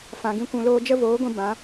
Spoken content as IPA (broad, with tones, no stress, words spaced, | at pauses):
fã˧ɡĩ˦ kʷũ˧loː˦ d͡ʒə˦voː˨˦ɡʷĩ˧ bã˨˦